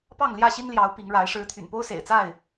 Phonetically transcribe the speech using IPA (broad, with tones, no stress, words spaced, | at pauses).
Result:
pɑ˥˨ŋljä˥˨ɕi˦nljɑ˨˦ʊ̯ pi˨˦ŋɻa˨˦ɪ̯ ʂɻ̩˨˦ t̪ʰy̰˨˩npo˦ʊ̯sḛ˨˩ɪ̯t͡sa˥˨ɪ̯